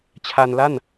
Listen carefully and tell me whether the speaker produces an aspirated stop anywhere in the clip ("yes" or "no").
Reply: yes